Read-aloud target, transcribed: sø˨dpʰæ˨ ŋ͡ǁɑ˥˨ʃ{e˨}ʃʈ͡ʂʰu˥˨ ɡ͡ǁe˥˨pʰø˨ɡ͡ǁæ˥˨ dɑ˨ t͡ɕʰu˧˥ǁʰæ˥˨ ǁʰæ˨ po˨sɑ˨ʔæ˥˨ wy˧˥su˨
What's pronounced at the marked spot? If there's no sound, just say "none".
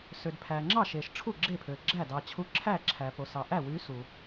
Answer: e˨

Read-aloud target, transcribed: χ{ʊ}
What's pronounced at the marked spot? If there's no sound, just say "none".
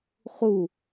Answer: u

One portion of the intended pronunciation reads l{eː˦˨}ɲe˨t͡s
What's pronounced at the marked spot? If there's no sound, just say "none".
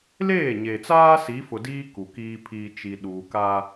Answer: eː˦˨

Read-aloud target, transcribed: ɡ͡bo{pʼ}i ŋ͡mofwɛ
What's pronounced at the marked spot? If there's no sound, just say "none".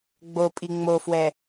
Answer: pʼ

